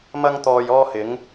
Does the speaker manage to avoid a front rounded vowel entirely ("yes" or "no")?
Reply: yes